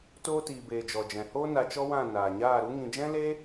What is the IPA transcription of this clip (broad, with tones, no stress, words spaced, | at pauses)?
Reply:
toː˧tiː˨ beː˨d͡ʒɔ˨d͡ʒɛ̃˨hoː˦ na˧t͡ʃɔ˦wã˦˨ naː˨ɲaː˦˨ɾu˦ŋĩ˧ d͡ʒɛ̃˦leː˦